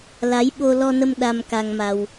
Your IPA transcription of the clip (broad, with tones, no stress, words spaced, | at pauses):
la˨˦jɓo˧ lɔ˧nə˧m ɗa˧mka˧ŋma˧w